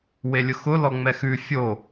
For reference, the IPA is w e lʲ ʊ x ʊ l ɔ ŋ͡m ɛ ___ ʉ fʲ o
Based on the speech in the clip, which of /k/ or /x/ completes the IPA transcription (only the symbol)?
x